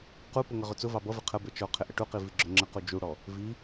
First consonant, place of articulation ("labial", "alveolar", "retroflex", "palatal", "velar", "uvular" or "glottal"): uvular